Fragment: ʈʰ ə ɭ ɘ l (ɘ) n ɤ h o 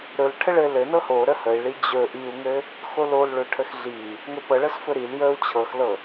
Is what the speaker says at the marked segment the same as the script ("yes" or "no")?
yes